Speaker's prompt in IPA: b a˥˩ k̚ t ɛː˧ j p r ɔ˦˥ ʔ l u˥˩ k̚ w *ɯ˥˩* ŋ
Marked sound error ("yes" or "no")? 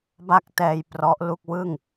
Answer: no